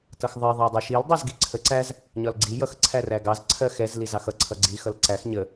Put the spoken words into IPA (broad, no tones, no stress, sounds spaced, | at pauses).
t ʌ x ðˤ ɜ ðˤ æ dˤ ɛ ʃ i l dˤ ɛ z ɡ i ǀʰ ə ǀ æ z | ɲ ɒ l ɡ͡ǀ i j ʌ x ǀʰ æ r æ ɡ ɑ z ǀʰ ɜ x ɛ z l i z ɑ x ʌ ǀʰ ʌ ɡ͡ǀ i x ʌ l ǀ æ x ɲ ə